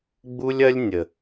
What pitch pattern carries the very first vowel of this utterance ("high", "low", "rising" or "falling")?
high